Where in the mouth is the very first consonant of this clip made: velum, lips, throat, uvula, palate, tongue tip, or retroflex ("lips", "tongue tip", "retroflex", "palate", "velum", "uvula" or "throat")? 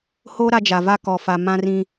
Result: throat